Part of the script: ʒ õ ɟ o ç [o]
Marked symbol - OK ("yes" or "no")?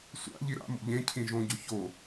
yes